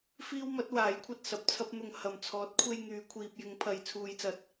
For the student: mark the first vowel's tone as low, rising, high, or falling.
high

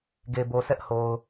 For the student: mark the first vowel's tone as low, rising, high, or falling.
low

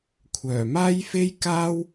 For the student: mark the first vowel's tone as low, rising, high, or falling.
low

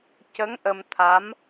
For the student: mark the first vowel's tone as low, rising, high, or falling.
rising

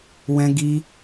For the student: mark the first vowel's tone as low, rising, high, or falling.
high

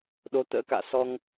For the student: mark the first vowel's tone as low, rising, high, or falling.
rising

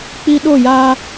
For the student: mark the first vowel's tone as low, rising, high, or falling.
high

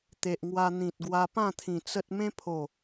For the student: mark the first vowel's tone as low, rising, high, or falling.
low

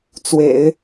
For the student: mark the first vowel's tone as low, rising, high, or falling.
low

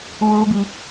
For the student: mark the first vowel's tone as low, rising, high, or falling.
high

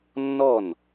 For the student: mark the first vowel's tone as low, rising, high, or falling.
falling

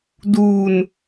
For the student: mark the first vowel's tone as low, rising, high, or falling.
low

